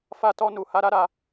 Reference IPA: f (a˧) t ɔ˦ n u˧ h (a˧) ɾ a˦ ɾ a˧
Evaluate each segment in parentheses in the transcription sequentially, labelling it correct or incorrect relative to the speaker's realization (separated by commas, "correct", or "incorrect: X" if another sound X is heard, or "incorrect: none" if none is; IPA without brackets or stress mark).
incorrect: a˦, incorrect: a˦